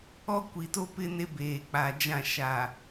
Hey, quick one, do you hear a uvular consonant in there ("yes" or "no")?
no